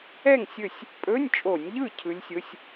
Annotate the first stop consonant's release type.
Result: ejective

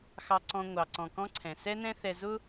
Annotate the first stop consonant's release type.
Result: click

